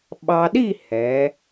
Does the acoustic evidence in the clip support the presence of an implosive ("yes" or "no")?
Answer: yes